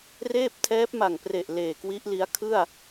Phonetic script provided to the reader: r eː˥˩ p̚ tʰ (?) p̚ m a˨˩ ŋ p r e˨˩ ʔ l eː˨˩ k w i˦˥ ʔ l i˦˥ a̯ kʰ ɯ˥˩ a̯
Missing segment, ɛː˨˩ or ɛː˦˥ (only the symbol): ɛː˦˥